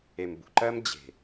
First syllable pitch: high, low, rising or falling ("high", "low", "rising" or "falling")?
low